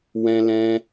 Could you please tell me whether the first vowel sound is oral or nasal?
nasal